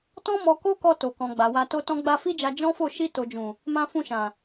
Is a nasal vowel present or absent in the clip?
present